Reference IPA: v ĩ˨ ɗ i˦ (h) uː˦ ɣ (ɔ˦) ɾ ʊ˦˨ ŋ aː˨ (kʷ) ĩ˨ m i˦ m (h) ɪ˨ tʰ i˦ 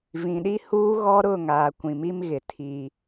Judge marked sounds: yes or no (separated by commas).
yes, yes, yes, no